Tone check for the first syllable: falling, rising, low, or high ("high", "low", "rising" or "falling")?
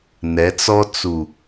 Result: rising